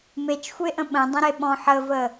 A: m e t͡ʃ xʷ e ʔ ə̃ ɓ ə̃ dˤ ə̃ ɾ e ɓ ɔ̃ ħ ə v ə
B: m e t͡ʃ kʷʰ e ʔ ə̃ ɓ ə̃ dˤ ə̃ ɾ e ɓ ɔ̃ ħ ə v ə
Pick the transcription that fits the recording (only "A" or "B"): A